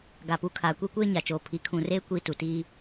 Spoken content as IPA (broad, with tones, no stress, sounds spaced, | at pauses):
ɡ a˨ p u˨˦ kʰ aː˨ kʷ i˦ kʷ eː˦ ɲ a˨ t͡ʃ oː˨ pʰ i˨˦ kʰ ũ˨ r eː˦ kʷ iː˦ t u˨ t iː˦